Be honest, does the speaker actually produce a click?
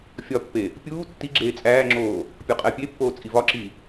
yes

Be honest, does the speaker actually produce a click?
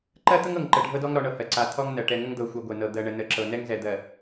yes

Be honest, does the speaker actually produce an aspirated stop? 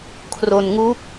yes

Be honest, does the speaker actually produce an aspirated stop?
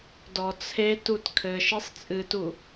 yes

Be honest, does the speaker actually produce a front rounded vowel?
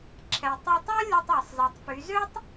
yes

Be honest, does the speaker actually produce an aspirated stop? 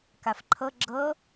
yes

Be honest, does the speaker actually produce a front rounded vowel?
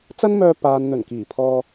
yes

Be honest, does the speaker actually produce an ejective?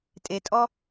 yes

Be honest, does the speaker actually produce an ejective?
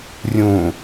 no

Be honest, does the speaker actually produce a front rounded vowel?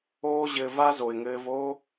no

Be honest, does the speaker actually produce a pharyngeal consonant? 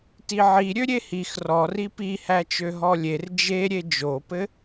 yes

